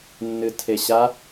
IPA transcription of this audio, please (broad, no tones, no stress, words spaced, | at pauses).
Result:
nːɨtʰeɕa